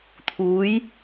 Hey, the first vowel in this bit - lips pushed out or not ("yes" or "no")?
yes